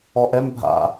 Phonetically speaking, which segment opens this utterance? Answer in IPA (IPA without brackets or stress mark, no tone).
ɔ